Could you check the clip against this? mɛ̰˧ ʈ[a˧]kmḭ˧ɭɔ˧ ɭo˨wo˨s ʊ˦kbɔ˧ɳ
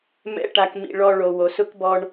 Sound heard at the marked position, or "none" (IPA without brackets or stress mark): a˧